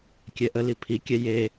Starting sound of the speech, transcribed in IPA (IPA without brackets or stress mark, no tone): kʲ